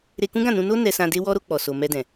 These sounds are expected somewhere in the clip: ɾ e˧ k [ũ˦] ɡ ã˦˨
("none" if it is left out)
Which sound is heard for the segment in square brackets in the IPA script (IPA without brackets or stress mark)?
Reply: ũ˦